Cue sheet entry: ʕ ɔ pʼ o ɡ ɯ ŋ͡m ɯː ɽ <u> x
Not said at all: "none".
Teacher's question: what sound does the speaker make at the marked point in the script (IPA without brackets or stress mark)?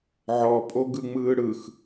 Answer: ɯ